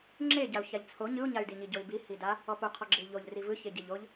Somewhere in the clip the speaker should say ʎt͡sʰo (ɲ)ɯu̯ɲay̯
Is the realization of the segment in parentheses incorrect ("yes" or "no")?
no